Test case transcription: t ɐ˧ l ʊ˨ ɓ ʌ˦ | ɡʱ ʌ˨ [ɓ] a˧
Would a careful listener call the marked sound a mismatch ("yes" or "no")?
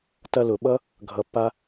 yes